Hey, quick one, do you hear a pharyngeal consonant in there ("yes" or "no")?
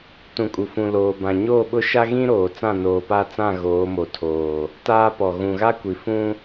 no